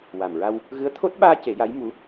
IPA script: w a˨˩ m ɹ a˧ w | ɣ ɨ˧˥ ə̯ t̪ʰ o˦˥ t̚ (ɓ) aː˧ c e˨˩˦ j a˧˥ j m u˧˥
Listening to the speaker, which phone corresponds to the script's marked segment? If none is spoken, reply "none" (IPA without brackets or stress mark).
ɓ